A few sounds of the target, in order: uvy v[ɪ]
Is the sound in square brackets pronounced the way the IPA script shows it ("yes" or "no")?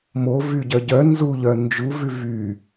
no